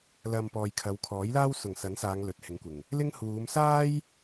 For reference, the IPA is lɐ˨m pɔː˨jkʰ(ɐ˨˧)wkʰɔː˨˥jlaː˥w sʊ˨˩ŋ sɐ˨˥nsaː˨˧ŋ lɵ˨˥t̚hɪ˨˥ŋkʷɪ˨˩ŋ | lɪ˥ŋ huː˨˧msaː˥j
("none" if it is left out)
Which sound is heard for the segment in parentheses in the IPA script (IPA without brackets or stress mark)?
ɐ˨˧